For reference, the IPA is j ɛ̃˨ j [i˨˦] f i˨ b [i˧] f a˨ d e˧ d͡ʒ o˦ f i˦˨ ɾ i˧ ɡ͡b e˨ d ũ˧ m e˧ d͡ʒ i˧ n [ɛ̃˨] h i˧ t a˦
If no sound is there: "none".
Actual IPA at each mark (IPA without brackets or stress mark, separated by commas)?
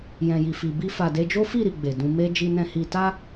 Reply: i˨, i˧, ɛ̃˧